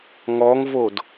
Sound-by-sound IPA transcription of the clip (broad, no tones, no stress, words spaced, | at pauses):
ŋɔŋvod